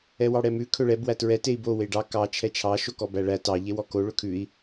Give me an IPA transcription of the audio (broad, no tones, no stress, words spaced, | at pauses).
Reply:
ɛwɑɽɛmʉ kʰɵɭɛb wætɹɛ tei̯bo weɖɑ kɑ t͡ʃʰɛt͡ʃʰɑ ʃokɔbæɭæ tɑ ʎewɔko ɭɵkʰʉi̯